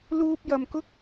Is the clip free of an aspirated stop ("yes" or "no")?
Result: yes